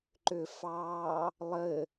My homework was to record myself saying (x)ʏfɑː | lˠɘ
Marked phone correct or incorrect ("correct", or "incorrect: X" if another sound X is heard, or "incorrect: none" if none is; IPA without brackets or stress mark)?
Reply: incorrect: ǃ